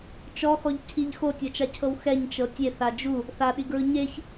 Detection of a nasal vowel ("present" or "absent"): absent